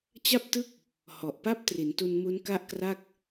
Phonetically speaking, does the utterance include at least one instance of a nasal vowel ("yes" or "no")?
no